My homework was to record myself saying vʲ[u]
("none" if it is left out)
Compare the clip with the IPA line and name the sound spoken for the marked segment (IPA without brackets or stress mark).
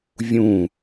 ũ